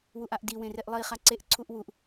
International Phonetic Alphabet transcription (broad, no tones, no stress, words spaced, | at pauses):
wuʔaʔdiwẽ reʔlˠiχa ǀeʔǀʰuʔ wuʔ